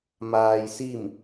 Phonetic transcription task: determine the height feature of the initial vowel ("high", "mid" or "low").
low